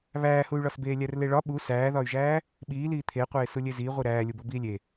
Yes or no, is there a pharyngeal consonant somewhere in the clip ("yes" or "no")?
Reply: no